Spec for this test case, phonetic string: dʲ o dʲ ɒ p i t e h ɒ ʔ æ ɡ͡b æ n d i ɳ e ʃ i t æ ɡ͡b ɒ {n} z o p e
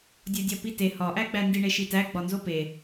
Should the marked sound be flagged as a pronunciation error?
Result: no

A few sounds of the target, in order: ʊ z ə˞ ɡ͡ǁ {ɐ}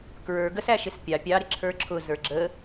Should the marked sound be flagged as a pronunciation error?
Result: yes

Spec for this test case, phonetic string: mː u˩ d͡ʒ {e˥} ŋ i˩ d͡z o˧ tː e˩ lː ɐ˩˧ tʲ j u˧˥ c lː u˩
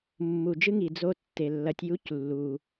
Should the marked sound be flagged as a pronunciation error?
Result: yes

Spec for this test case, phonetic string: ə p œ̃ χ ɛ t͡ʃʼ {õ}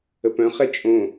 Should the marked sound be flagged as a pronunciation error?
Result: no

